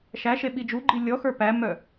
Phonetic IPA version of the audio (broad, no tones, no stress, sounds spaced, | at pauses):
ʃ æ ʃ e ɓ i d͡ʒ u ɡ͡ǃ i lʲ ɔ x ə˞ p æ m œ